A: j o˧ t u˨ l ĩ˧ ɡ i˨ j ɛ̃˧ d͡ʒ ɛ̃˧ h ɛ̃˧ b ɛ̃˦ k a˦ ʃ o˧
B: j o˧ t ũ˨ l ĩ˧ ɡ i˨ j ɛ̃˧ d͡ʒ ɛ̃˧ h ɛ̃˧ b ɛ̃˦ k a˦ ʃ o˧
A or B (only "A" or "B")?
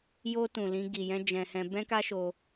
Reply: B